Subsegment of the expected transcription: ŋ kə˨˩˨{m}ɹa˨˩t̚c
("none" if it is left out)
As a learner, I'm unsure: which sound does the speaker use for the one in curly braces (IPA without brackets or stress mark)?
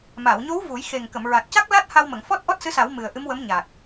m